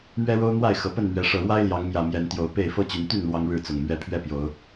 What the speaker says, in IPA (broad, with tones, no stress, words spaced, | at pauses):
mɥɛ˦ɻo˦ʊ̯n̪wa˥˨ɪ̯ xɤ˨˩pə˥˨nmɥɛ˨˦ ʂɤ˨˩ɻwa˦ɪ̯ ljɑ˨˦ŋmjä˨˩ mjɛ˨˦nt̪jo˨˦ʊ̯pe˥˨ɪ̯ fɤ˦t͡ɕy˨˦nt̪y˥˨n lwɑ˦ŋɻɻ̩˥˨t͡sʊ˨˩ŋ mɥɛ˨˦pʰɥɛ˥˨ pjo˨˦ʊ̯